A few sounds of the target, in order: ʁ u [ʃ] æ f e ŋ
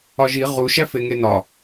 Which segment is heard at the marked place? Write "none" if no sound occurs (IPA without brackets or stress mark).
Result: ʃ